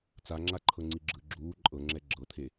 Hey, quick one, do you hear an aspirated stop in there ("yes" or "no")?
yes